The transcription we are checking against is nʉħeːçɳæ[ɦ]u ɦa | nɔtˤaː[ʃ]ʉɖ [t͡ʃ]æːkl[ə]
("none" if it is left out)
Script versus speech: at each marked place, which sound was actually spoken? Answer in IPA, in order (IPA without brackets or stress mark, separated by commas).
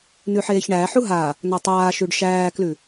ħ, ʃ, ʃ, ʉ